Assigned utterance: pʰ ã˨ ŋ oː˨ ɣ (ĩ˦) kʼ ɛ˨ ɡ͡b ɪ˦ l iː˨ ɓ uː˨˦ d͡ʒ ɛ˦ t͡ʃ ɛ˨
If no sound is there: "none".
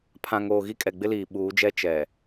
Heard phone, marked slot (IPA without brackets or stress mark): i˦